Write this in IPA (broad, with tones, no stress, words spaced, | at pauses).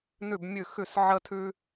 nʉ˧˩bmʲʉ˧˩ xʉ˧˩sʕə˧tʰʉ˧